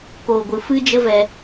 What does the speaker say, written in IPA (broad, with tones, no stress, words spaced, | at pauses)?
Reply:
koː˨ɡʷɨ˨ fɨ˦d͡ʒə˦vɛ˧